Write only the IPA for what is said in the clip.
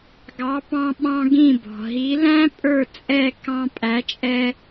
ɡɑ˩˥pɑ̃˧ɓɑ̃˧ ɡĩ˥˩bɔ̤˩ ɦi˩˥læ̃˥ pʼə˞˥˩t͡sʼɛ˥˩ kɑ̃˧pʼæ˩˥t͡ʃʼɛ˧

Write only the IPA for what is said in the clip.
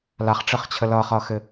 laχʈ͡ʂɘχt͡ɕʰə lʌχʌxɘ

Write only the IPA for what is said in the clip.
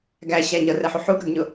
ɡæɕæ ɲʌrɛħu ħuɡɾʌɡɲʊ

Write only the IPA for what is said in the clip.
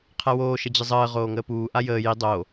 qʰɛwoː ʃəd͡ʑəzˤəː ʁoːŋəːpuː ʔajəː ji dˤo

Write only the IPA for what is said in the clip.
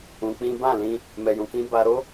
ũ˧k͡pĩ˦ bã˦˨lĩ˧ | mɛ˨jũ˨kĩ˨˦ba˧ ɾo˦

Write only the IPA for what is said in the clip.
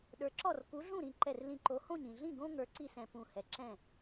ɗə˞˨˥ǁɔ˥˩r ku˨˥ɮũ˥˩ɾĩ˧˩ ǃɛ˧˩rlĩ˧˩ǃo˨˥hõ˥˩ɲ ĩ˧˩ ɮĩ˥˩ɡõ˦ ŋə˞˨˥ǀi˥˩sɛ̃˧˩ pũ˧˩ hɛ˨˥ǁɛ̃˥˩

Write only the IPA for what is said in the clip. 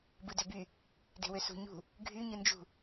bɯdøby | de̤wøsṳ ɲṳ | ɡʱy ɲɯnd͡ʒṳ

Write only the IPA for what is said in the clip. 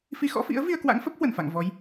fi˧xɔ̰˧˥fḭ˧˥ə̯ vi˧ə̯kwa̰˧˥ŋfə˦˥p̚ hwə˧˩nfa̰˧˨ŋ vɔ˨˦j

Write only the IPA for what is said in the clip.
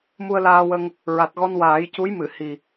mu˧ə̯laː˧wə˧ŋ | ɹa˨˩t̚ɣɔ˧n waː˨˩˦jcu˧˥jmɨ˨˩˨ hi˨˩

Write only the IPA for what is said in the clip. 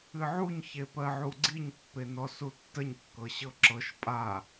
ɨʕuɲ çepɜʕuɡ͡ǀiɲ pːenɔsutːəɲ kːɤɕɤǁɤʃ pʼa

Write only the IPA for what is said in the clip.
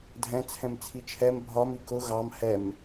dʱɛ̃t͡sʰɛ̃m t͡sʰit͡ʃʰɛm bʱɒm ikʊ ɣɑm hɛm

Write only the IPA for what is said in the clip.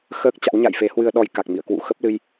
xəː˦˥k̚t͡ɕa̰˧˥wɲa̰˧˨j fe˨˦hwɨ˧ə̯ɗɔ˧j ka˨˩k̚mḭ˧˨ə̯kwṵ˧˥ xə˦˥p̚lɨ˧j

